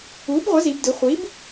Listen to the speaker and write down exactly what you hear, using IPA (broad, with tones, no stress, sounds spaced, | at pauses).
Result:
uː˩˥ b ʁʷ ʌ˩˥ z i˩˧ b d ɯ˩˧ χʷ i˩˥ b